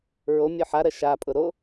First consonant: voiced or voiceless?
voiced